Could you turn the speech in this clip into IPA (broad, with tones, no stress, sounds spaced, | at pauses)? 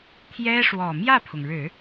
t̪ʰ j ɛ˥ ʂ w ɔ˨˩ m j ä˥˩ pʰ ʊ˩ ŋ ɻ ɻ̩˨˩˦